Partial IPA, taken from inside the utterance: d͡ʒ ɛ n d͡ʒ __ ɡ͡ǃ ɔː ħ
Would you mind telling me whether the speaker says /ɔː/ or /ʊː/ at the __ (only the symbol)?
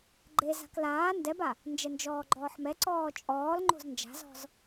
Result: ɔː